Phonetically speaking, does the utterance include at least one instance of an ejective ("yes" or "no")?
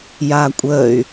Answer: yes